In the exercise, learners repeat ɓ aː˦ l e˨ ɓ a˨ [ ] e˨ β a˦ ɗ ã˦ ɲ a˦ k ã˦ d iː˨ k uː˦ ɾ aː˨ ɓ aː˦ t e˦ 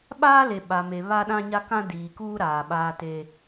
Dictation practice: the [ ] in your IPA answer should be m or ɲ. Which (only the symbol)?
m